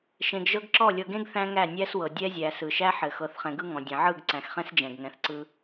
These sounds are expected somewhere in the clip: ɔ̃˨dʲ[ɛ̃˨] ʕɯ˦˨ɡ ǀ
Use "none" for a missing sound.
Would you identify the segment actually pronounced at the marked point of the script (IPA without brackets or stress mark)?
ɛ̃˨